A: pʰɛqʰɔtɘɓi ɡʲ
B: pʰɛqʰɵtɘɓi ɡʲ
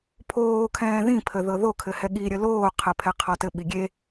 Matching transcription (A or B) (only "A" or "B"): A